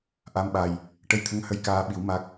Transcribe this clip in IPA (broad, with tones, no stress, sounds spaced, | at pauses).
ʔ a˧ m ɓ a˨˩ j | ʈ ə˧ j t̪ʰ ə˧˥ ŋ h ə˧˥ j k aː˧ ɓ i˨˩˦ w m a˦˥ k̚